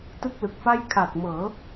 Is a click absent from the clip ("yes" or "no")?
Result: yes